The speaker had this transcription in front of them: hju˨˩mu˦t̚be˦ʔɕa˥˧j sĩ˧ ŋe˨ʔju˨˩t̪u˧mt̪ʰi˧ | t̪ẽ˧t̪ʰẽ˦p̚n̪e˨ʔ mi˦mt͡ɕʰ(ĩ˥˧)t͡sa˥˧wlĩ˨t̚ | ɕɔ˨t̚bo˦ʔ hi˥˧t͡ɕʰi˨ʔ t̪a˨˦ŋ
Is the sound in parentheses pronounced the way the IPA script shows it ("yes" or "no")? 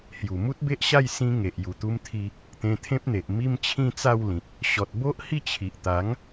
yes